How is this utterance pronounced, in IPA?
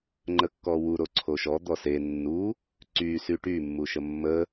ŋ͡ǃ ə kː ɔ w u ɾ o ǀʰ o ʃ ɔ d̪ ɔ s e nː u | ǀ y s y ʈ y mː u ʃ ə mː ə

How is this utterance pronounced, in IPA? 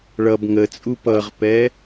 ɭ ʌ b ŋ ə t͡sʼ u p ʌ ʁ p ɛ

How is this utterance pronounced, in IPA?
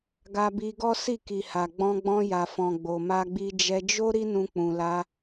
ɡ a˧ b i˧ ɡ ɔ˦ s i˦˨ k i˨ h a˨ ɡ͡b ɔ̃˧ ɡ͡b ɔ̃˧ j a˨ f ɔ̃˨ ɡ͡b o˨ m a˧ ɡ͡b i˧ d͡ʒ ɛ˧ d͡ʒ o˦ ɾ i˦ n ũ˧ k͡p ũ˨ l a˧

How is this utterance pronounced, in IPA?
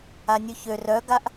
a nʲ u ç ø r œ ɡ a ʔ

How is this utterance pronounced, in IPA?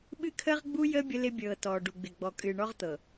ɓ ɨ˦ kʰ əː˦ ʁ ɡ͡b u˦ j əː˦ bʲ ə˦ l ɪ˦ bʲ ɤː˨ t ɔː˨ ɖ u˨ ɡ͡b ɪ˨ ɡ͡b ɔ˨ kʼ ɨː˨ ɳ ɔ˦ ʁ t̪ ɤ˨

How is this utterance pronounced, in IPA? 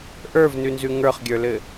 ʔ ə˞ v n ʉ n z ʉ ŋ ə˞ χ ɡʲ ə˞ l ɘ

